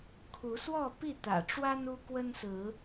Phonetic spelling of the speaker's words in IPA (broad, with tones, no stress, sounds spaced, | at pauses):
kʰ u˨˦ s w ɔ˥˨ p i˥˨ t̪ ä̰˨˩ ʈ͡ʂ w a˦ n u˦ k w ə˦ n s ɹ̩˨˦